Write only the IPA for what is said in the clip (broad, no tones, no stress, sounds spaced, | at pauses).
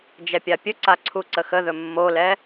d͡ʒ ɛ pʲ a pʲ ɵ ǀ a ǀʰ u ǀ ə x ə ð ɵ mː o l ɛ